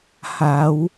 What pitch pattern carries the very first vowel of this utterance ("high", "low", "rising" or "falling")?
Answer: rising